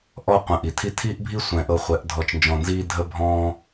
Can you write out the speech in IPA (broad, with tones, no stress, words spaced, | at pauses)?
ʔɔ˧qʷə̃˨ ʔi˨tʰi˦ tʰiː˦ʔbʱi˦sʷɛ̃˨ʔɤ˧ χʷɛ˨˦ʔ dʱɔ˨t͡ʃnd͡ʒɔ̃˨nziː˧ dʱə˦bʱɔ̃ː˦